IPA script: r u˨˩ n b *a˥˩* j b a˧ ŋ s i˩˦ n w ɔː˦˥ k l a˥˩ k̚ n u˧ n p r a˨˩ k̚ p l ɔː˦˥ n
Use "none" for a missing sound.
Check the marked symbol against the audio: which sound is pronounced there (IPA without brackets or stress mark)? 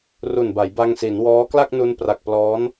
a˩˦